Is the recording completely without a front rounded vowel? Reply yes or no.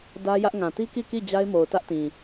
yes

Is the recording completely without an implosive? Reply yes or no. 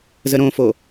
yes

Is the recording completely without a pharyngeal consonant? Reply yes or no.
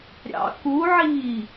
no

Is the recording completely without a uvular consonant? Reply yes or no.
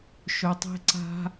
yes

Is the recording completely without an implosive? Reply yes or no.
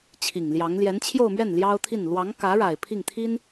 yes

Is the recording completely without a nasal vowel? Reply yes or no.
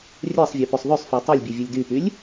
yes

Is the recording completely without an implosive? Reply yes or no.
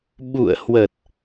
no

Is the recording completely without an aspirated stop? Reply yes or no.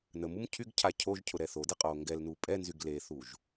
no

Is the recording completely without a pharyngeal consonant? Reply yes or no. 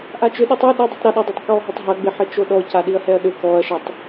no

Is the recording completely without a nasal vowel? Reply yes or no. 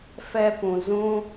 no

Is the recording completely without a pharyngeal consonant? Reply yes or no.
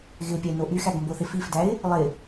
yes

